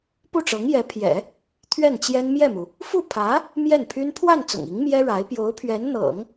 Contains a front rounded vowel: yes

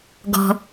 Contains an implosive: no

